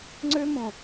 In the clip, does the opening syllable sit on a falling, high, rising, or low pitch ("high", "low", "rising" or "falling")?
high